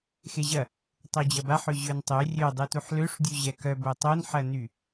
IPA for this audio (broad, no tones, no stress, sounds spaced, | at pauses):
x e ʑ ɐ | tˤ o d͡ʑ ɐ b a ħ ø ʑ ø n tˤ ø rʲ ø dˤ u t u ħ l ø ʂ dʲ u ʑ ɛ k œ b o tˤ o n ħ ɐ n y